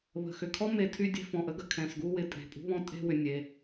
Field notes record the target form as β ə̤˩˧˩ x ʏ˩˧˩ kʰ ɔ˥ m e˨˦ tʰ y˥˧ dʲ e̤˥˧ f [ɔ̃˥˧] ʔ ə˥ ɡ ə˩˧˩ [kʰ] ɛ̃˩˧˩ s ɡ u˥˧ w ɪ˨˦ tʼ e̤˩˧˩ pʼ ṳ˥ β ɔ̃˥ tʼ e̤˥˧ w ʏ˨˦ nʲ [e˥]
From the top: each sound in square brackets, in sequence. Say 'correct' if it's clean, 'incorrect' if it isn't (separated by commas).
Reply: incorrect, correct, incorrect